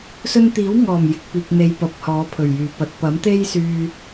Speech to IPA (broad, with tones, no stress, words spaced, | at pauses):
sɵ˧nt̪iː˨˥wŋɔː˨˩m jɪ˨k̚piː˨k̚n̪e˨j pɐ˨˥p̚hɔː˨˥pʰɵ˨˩ɥjyː˨˩ pɐ˨t̚pɐ˨˥m t̪e˥jsyː˧